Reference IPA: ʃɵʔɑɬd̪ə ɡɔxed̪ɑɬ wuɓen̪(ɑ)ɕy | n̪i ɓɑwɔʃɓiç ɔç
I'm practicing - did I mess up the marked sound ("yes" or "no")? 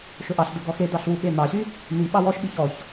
no